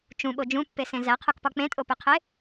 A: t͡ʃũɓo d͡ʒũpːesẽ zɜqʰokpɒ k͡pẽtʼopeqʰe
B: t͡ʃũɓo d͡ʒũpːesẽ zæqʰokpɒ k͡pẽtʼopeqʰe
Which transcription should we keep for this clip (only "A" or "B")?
B